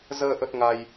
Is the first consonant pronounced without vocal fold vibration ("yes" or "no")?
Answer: no